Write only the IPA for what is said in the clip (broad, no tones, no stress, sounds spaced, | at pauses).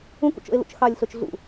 ũ k ṵ t͡ʃ o̰ e̯ l ṵ t͡ʃ x ɑ lʲ ɬ o t͡ʃ ɮ ṵ